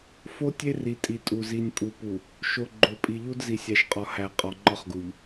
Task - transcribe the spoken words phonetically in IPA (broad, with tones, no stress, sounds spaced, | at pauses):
f o˦ tʲ e˦ r i˨ tʼ i˨ tʼ u˨ z i˨ nʲ pʼ u˨ p u˨ | ʃ o˨ ɡ͡ǃ o˨ pʼ i˨ ʎ u˦ d z i˨ sʲ æ˨ ʃ qʼ ɒ˨ h æ˨ qʼ ɒ˨ ŋ͡ǃ ɒ˦ χ ɡ u˨ ʎ